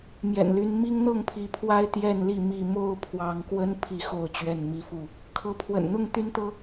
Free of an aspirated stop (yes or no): no